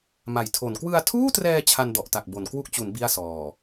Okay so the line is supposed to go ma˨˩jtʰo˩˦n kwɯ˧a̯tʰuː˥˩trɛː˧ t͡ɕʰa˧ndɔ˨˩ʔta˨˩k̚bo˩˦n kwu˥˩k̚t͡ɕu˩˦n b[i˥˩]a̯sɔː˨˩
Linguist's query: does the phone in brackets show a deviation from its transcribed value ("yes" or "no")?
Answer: no